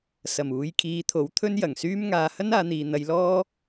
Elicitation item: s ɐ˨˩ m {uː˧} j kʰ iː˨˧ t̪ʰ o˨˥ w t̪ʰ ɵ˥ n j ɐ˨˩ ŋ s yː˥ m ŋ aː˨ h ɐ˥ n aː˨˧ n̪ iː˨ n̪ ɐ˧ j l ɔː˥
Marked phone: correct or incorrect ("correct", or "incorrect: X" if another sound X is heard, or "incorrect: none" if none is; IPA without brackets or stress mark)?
incorrect: uː˨˧